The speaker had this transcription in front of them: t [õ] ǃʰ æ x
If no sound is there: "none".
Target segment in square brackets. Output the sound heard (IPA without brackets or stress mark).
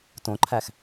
õ